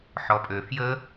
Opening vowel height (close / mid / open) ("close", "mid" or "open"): mid